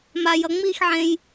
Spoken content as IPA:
m a j ʌ ŋ͡m i x ʕ ẽ j

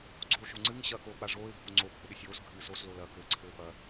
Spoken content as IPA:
ɡ͡ǀ oː ʃ o ŋ͡ǀ ɨ ŋ ɕ ɐ k oː k͡p a ʐ oː ɪ̯ bʱ o ŋ͡ǀ o bʱ ɘ ɗ ɘ sʲ oː s ɡʱ ɨː s o s l o l ɐ k ɘː ǀʰ ɘː p ɐ

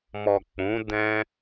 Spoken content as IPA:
m ɔ˨ k͡p ũ˨˦ d ɛ̃˧

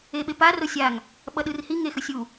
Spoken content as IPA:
e ɓ e p a r o sʲ a ŋ | ɓ ʌ ɗ ɯ r h i ŋ e x ɯ sʲ u

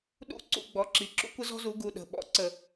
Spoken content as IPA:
ɗ ṵ˥˩ ǀ ṵ˥˩ ɡ͡b ɔ˩˧˩ ǁ i˩˥ ǁ ṵ˥ kʷ ə˥ z ɔ̤˥ z u˩˥ ɡ u˩˧˩ ɗ ə̤˩˧˩ ɓ ɔ̰˥ ǀ ə˧˩˧

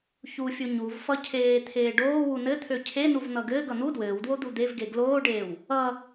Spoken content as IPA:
ç u fʲ u ɲ u v f ʌ cʰ eː t̪ʰ eː ɖ oː w u n ɘ t̪ʰ ø cʰ e n u v n̪ ʌ ɡ ɘː ɡ ʌ n̪ u d w ɘː w d w o d̪ u d̪ e v ɡ e ɡ l oː ɖ eː w | ʌ

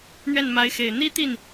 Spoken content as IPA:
n̪ ɥ ɛ˥˩ n m a˧˥ ɪ̯ x e˨˩ ɪ̯ n̪ i˥ t̪ i˥˩ n

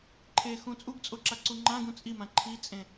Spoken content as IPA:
ǃʰ e x ũ t͡sʼ u ɡ t͡sʼ o ǁ a ǀ u ŋ͡ǃ ã ɡ ũ t͡sʼ i m ã ǃʰ i t͡sʼ ẽ

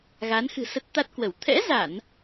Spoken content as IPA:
ɣ a˨˦ n x ɨ̤˨˩ s ə˦˥ t̚ t̪ a˦˥ t̚ k w ə˧˩ w t̪ʰ ɛ̰˧˥ z a˧˩˨ n

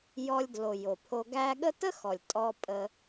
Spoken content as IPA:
j ɔ˨ lʲ d l o˩ j o˩ pʰ o˨ ɡ æ˦ ɠ ə˦ t ə˥ x ɔ˩ lʲ tʼ ɔ˨ pʼ ə˨

